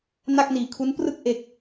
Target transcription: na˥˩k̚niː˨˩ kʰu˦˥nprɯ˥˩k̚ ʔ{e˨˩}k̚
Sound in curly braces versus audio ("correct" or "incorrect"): correct